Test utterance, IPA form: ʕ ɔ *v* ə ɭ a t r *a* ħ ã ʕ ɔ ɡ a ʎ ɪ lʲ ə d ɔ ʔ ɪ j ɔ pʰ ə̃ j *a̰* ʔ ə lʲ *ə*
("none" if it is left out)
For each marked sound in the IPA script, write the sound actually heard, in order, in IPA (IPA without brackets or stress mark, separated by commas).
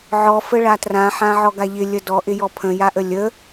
f, ã, a, ə